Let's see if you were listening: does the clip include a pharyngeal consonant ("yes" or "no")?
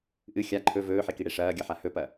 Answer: yes